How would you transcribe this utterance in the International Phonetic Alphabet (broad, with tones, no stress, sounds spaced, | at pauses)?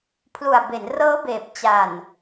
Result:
pʰ l u˨˩ a̯ b e˩˦ n r ɤː˦˥ b eː˨˩ p̚ t͡ɕ a˨˩ n